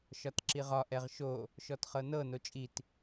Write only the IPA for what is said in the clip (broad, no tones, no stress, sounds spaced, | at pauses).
ʃ ɒ t ǁ i ʁ ɒ ʔ ɛ ʁ ʃ o | ʃ ɔ t χ ɤ n ɤ n o t͡ʃʼ i t